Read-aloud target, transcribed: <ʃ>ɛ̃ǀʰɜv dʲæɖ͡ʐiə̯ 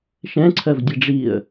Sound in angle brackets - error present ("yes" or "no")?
no